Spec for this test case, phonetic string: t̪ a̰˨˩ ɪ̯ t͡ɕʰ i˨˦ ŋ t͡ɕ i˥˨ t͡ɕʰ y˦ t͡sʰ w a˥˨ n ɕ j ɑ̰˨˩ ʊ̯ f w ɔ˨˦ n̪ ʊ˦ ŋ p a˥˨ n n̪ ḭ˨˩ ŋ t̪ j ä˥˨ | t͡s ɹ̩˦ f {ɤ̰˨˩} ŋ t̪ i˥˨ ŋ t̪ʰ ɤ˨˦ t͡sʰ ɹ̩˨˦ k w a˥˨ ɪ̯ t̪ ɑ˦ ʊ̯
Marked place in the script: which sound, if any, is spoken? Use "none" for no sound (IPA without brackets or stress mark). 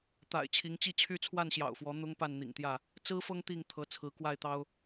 ɤ˦